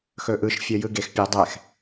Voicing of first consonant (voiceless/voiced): voiceless